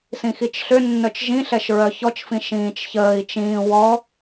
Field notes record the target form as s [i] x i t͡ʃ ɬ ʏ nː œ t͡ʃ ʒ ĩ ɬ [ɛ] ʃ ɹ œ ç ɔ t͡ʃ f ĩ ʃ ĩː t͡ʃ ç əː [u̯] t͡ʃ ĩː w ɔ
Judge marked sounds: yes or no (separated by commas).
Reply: no, yes, no